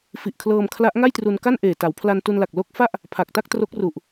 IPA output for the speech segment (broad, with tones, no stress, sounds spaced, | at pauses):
f i˨˩ ʔ kʰ l ɤː˧ m kʰ l a˦˥ ʔ ŋ a˥˩ j t r u˧ n k a˥˩ n ʔ eː˨˩ t a˩˦ w pʰ l a˧ n t u˧ n l a˨˩ k̚ l o˦˥ k̚ f a˥˩ ʔ | pʰ a˨˩ k̚ t a˥˩ k̚ t r o˦˥ k̚ r u˨˩ ʔ